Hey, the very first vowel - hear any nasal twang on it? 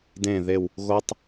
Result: yes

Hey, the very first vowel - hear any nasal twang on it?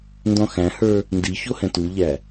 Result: yes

